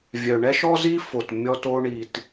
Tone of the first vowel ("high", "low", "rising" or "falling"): low